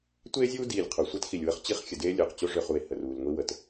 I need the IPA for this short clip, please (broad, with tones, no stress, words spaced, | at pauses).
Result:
tʷeː˦zʲuː˦ diː˨lʲ qʰu˨sʷe˦txi˨lʲwə˦χ t͡ɕi˦χxʲə˨deː˦lʲo˨q t͡ɕo˦ʐø˨χu˨e̯ hə˨ruː˨lŋʷi˦ wə˨t